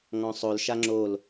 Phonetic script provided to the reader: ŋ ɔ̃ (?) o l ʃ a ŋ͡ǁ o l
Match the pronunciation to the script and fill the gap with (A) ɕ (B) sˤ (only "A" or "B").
B